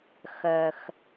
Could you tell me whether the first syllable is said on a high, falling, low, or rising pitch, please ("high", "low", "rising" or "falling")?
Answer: low